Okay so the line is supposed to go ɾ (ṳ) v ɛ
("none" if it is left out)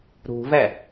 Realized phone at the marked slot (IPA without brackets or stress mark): ṳ